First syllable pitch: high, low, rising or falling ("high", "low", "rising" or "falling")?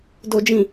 low